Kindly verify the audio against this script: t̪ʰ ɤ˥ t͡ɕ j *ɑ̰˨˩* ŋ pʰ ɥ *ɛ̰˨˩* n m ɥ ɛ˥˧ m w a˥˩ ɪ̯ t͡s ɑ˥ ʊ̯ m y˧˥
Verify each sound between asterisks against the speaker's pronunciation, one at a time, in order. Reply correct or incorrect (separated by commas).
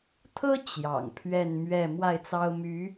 correct, incorrect